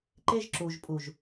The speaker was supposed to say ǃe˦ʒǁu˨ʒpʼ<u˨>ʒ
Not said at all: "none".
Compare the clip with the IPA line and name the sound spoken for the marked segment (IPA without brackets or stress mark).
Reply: u˨